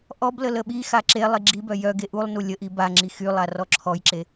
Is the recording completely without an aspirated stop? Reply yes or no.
no